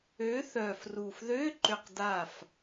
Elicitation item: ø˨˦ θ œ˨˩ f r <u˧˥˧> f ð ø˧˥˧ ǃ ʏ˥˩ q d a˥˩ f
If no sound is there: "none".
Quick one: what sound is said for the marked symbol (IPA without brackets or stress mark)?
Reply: u˨˩